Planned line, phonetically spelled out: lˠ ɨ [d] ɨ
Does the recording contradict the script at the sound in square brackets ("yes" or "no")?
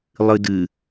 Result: no